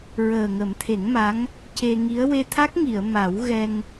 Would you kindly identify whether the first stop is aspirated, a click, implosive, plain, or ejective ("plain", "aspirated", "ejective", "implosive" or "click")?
aspirated